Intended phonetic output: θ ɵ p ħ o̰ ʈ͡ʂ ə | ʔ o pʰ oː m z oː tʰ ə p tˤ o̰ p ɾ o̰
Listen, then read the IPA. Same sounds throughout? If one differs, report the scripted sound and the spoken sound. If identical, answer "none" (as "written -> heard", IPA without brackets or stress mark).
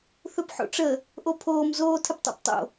ɾ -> tˤ